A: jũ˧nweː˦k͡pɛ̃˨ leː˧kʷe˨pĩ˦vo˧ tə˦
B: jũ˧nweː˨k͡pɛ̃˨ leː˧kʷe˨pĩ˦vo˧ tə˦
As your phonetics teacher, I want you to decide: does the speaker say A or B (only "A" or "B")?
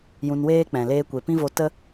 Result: A